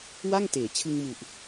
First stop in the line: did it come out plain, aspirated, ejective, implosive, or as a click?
plain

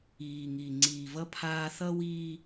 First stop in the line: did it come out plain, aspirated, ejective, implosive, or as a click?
click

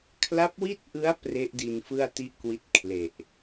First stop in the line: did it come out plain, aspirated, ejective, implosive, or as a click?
aspirated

